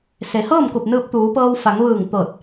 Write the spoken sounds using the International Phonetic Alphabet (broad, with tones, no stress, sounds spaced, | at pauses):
s e˩˧ h ɤː˥˨ m k u˧˩ p̚ n ɯː˧ p̚ t̪ uː˩˧ p ɤː˧ w f a˩˧ ŋ ʋ ɯː˧˩ ŋ t̪ ɤː˧˩ t̚